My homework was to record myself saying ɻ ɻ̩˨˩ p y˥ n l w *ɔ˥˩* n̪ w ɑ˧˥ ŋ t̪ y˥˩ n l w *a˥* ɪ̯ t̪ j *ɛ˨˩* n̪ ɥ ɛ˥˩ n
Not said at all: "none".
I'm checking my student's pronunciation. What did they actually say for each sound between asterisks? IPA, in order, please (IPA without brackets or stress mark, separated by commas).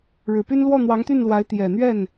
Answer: ɔ˥˩, a˧˥, ɛ˨˩